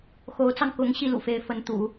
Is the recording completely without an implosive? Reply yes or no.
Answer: yes